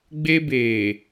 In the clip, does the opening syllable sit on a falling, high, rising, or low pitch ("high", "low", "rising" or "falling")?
high